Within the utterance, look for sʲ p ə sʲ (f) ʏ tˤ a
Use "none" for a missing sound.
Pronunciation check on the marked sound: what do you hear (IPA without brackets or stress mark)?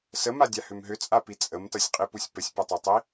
p